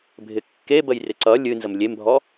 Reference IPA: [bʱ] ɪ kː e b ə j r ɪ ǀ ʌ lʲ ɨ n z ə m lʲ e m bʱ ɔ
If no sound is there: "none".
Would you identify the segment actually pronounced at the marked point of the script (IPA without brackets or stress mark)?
bʱ